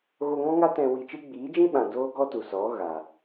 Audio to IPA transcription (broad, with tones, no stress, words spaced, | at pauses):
ɣo˧ŋɔ̃˦ŋa˦ tɛ̃˧wi˧t͡ʃɨ˦ ɡ͡biː˨˦d͡ʒĩ˦ɓã˨ doː˦ɡɔ˦tu˨sɔ˨˦ ɣa˨